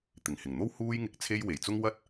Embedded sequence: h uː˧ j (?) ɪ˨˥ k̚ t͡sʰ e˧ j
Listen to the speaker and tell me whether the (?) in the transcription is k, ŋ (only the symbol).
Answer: ŋ